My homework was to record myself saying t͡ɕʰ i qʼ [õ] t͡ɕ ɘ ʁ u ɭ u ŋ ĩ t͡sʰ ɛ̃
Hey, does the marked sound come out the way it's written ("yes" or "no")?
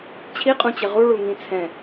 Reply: no